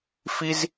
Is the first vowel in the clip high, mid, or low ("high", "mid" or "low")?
high